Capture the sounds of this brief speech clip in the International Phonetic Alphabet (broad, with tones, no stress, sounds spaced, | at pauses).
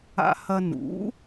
a̰˧ h ɐ˧ n ṵ˩˥